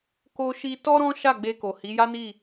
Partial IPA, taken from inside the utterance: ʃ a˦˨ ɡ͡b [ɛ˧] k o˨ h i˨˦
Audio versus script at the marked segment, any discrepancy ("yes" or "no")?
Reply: yes